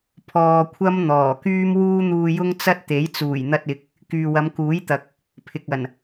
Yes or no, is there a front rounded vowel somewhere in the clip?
yes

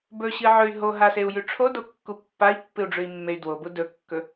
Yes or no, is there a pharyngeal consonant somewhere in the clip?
yes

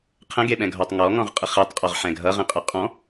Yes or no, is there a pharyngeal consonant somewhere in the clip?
yes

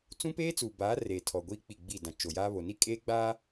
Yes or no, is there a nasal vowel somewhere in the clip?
yes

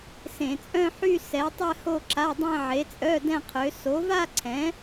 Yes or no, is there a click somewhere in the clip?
yes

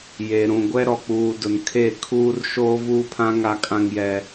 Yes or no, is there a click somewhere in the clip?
no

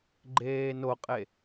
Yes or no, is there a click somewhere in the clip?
yes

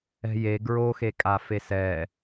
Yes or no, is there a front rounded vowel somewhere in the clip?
no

